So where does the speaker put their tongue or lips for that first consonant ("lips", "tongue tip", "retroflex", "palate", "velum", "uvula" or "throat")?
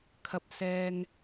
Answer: velum